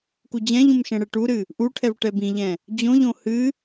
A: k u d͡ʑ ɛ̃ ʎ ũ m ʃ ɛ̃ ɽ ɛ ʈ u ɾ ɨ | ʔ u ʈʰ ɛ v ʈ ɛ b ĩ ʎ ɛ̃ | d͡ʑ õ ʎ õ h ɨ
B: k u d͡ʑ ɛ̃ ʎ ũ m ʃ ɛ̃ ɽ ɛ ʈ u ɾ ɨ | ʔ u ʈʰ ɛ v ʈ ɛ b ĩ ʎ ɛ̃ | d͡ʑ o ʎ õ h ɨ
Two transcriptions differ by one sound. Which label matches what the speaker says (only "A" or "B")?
A